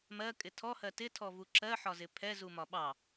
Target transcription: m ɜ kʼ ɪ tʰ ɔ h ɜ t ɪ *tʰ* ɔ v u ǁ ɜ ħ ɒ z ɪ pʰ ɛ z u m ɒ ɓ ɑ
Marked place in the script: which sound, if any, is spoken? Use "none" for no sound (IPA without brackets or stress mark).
tʰ